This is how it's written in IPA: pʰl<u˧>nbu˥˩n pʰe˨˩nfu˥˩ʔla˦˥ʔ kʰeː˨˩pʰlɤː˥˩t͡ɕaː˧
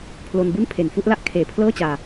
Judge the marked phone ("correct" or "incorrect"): incorrect